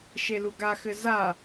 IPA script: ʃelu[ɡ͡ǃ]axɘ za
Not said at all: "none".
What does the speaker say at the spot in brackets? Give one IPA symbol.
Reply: ɡ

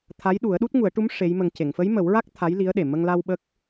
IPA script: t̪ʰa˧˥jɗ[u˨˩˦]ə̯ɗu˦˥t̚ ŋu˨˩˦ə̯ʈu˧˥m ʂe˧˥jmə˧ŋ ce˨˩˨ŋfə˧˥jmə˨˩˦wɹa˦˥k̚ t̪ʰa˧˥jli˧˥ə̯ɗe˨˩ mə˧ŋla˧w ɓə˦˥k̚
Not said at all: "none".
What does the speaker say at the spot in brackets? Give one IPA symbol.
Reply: u˨˩˦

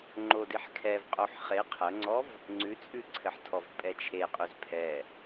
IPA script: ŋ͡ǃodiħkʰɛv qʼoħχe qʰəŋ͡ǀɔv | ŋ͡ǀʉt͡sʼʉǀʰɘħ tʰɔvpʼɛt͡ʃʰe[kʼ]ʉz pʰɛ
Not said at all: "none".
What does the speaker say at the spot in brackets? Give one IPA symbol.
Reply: qʼ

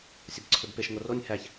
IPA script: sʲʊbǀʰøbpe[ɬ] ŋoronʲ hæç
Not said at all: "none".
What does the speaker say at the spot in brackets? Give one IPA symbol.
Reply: ʃ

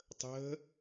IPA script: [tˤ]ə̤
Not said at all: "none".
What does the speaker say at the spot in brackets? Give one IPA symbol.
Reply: tˤ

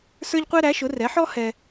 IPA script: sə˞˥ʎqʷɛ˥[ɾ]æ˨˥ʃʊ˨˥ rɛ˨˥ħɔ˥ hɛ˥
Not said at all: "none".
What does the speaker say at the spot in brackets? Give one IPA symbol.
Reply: ɾ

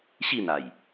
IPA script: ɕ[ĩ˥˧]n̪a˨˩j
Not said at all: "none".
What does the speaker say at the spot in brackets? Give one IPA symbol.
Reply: i˥˧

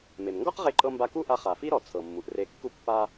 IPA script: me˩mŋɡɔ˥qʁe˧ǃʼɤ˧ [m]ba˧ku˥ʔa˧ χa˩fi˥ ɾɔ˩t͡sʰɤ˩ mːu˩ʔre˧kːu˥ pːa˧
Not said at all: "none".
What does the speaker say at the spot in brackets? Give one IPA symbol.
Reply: m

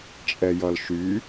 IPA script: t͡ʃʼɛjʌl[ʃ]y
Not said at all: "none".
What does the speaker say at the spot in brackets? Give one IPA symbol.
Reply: ʃ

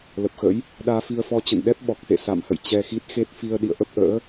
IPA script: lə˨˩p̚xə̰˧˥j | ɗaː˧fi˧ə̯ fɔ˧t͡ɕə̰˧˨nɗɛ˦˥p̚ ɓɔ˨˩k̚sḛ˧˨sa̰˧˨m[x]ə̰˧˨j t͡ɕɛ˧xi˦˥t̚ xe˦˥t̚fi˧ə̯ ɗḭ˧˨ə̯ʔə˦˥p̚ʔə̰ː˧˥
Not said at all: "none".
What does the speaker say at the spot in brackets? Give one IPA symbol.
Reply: h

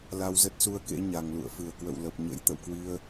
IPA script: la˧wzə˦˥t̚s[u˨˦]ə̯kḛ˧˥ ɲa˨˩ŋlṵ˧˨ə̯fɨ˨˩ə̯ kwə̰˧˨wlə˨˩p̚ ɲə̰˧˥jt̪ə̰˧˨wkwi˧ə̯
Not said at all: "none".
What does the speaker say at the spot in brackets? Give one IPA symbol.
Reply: u˧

